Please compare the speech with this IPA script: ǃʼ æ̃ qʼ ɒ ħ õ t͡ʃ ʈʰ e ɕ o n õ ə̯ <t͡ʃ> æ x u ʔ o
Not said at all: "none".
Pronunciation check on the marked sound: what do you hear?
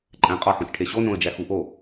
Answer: d͡ʒ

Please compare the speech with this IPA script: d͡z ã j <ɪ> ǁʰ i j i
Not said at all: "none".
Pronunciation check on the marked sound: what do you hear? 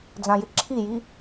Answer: ɪ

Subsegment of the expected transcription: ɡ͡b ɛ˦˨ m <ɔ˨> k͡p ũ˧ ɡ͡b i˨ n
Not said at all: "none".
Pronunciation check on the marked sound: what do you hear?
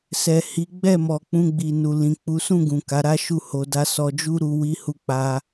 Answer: ɔ˨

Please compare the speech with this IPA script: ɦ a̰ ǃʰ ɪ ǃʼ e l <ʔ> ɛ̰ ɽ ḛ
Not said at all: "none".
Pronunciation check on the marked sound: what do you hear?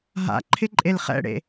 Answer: χ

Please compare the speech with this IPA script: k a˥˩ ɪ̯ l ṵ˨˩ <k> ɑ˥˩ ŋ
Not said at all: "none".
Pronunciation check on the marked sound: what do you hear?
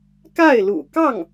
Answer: k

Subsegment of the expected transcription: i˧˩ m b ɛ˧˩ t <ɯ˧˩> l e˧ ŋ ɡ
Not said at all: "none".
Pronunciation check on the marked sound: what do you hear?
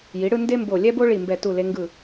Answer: u˧˩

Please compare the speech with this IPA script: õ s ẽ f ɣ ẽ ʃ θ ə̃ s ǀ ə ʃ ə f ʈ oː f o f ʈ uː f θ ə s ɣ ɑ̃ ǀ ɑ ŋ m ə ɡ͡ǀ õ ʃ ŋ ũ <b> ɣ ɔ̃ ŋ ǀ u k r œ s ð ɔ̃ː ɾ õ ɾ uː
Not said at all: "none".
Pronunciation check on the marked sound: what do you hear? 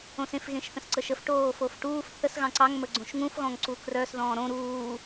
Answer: f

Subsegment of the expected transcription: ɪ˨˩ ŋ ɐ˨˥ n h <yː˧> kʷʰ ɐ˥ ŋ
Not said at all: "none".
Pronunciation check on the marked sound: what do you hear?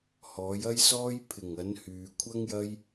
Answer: yː˨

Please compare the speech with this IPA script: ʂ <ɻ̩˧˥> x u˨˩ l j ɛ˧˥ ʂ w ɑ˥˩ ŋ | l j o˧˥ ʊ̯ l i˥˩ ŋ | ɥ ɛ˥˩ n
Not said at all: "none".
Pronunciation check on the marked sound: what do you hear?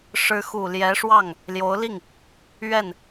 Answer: ɻ̩˧˥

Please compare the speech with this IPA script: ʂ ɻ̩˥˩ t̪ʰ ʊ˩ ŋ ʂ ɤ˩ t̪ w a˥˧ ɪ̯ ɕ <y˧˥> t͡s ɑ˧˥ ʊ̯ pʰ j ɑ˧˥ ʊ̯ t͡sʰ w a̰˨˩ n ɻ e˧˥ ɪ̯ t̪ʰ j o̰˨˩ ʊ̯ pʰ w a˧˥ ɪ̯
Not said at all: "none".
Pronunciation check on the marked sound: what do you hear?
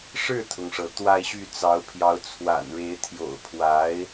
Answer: y˥˩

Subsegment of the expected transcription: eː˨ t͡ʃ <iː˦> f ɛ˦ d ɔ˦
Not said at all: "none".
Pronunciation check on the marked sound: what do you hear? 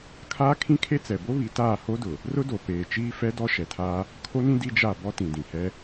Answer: iː˦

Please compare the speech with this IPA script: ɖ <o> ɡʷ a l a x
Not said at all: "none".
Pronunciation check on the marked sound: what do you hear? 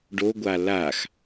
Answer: o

